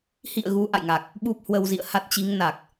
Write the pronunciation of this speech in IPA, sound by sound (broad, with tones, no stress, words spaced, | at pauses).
hḭ˧˨ə̯ ɣu˨˦ʔa̰˧˨jŋa˨˩k̚ | ɓu˦˥p̚hwə˧wzḭ˧˨ə̯ ha˦˥t̚t͡ɕi˨˦ŋna˨˩k̚